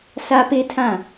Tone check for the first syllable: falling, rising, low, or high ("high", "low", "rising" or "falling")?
high